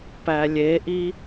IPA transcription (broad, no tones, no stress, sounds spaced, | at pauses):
p æ lʲ e ʔ i